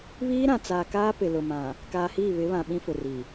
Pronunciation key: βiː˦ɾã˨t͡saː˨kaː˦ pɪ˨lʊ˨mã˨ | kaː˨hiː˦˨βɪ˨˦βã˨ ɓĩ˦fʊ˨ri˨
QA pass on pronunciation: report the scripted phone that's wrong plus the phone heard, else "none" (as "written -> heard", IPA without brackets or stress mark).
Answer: none